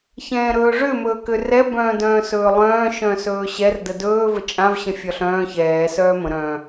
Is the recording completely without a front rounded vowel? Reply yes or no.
no